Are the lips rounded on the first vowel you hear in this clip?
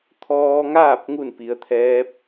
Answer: yes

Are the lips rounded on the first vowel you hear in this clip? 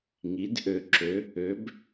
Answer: no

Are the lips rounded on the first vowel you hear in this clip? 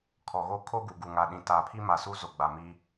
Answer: yes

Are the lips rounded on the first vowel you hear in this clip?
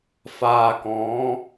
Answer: no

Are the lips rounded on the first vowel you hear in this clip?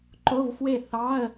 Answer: yes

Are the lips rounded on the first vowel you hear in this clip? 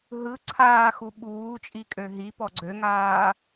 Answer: no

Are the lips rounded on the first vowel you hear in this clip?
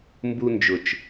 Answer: yes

